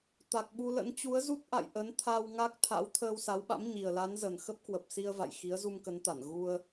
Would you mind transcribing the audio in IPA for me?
t̪ a˨˩ k̚ ɓ u˧ l ə̰˧˥ n t͡ɕ u˨˦ ə̯ z u˦˥ t̚ ʔ a̰˧˨ j ʔ ə˨˦ n t̪ʰ a˧ w ŋ a˦˥ k̚ t̪ʰ a̰˧˥ w t̪ʰ əː˧ w s a˨˦ w ɓ a̰˧˥ m ɲ i˨˩ ə̯ l a˨˦ n z ə˨˩ n x ə˦˥ p̚ k w ə˨˩ p̚ s i˧ ə̯ v a̰˧˨ j x i˨˦ ə̯ z u˧ m k ə˨˦ n t̪ a˧˩ n ɣ u˧ ə̯

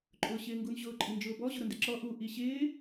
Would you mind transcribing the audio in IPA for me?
ǃʼ ʊː ɕ ɪː ŋ ɡ u n ʑ ʊː ǃʼ i n d͡ʒ ʊː b ɔ ʑ ʊ ɾ ʊ n d ɪ ǁ ɔ ʔ u ʔ i ɕ ɪː

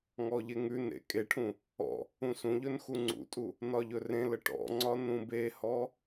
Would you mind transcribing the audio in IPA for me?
ŋ ɔ ʎ e ŋ ʉ n ḛ kʼ e ʈʰ ũ | ɔ̰ | ũ s ũ ʎ ɵ n x u ŋ͡ǀ ṵ tʼ u | n ɒ ʎ ɵ r ẽ l ə ʈ ɔ̰ ŋ͡ǀ ɒ n ũ b e h ɔ

